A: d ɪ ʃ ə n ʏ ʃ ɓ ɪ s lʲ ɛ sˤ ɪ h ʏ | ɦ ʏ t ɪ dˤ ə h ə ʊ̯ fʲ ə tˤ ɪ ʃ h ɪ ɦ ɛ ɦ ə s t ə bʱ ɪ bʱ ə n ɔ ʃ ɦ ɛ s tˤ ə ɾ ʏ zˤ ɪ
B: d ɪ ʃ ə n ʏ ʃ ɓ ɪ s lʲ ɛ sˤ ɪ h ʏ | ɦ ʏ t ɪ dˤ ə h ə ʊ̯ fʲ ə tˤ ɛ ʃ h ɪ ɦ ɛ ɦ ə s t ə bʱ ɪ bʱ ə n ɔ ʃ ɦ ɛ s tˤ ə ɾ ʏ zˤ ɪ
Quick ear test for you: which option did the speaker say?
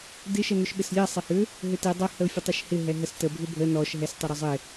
A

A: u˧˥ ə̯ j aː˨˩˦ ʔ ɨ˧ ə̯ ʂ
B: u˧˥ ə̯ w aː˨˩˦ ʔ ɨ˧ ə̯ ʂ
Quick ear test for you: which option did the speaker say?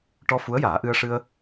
A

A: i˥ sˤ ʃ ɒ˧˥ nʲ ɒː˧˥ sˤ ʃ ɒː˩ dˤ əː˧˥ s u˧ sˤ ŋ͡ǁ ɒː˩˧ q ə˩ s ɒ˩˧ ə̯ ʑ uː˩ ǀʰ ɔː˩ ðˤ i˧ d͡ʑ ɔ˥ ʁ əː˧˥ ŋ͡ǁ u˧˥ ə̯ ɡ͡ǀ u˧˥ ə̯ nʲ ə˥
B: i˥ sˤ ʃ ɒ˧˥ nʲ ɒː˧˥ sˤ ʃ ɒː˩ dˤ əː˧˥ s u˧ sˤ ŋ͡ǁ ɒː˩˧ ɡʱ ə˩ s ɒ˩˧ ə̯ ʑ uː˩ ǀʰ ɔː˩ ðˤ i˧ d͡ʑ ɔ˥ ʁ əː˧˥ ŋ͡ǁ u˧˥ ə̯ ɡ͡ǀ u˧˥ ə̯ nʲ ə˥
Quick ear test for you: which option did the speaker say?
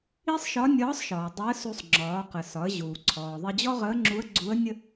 A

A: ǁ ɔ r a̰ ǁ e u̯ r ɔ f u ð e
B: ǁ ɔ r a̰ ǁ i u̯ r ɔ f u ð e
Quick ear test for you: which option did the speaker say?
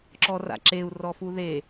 A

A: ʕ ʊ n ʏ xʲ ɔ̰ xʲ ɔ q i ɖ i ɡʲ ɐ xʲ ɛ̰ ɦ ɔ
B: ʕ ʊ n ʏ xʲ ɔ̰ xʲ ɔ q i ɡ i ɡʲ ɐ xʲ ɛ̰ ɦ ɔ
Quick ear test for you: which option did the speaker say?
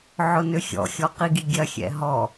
B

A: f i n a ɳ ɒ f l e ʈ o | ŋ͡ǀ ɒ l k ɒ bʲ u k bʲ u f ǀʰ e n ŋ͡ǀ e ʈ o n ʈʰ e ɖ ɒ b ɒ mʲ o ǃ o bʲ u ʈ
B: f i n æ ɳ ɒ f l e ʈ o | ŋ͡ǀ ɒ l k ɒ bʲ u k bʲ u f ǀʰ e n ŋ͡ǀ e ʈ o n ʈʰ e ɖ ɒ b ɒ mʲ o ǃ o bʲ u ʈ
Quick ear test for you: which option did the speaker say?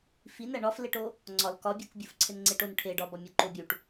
B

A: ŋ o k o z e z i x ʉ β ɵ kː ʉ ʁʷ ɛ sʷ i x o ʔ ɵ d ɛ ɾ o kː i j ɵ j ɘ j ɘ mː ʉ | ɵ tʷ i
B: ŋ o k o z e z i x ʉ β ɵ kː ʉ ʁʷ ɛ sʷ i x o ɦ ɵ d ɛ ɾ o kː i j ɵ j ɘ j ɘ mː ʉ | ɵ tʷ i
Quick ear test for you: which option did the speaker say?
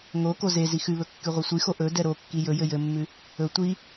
A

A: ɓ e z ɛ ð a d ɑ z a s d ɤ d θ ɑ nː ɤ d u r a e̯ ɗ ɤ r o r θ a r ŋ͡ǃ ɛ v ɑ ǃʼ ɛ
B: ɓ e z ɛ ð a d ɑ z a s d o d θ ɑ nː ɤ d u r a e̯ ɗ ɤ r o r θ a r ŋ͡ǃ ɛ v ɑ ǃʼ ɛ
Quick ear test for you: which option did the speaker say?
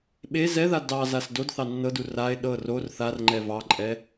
B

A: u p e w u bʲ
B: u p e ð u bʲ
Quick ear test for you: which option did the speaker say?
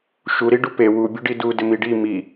A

